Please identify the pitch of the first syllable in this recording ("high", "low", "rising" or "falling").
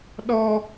low